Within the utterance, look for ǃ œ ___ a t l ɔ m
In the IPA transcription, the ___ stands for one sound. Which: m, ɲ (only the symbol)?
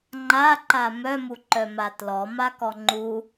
m